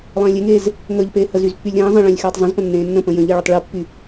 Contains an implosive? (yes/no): no